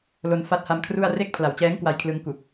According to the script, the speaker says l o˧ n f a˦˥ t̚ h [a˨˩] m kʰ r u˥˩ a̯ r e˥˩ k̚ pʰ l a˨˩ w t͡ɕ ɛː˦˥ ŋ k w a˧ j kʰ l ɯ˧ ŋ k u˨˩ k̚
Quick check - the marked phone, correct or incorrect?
incorrect: a˧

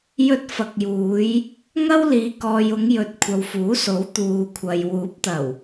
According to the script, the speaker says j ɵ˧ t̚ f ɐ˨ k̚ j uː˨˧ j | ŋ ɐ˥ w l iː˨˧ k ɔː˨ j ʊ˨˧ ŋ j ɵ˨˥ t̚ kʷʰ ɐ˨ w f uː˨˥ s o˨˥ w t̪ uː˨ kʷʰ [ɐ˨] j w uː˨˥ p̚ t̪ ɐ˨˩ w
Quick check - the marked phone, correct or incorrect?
correct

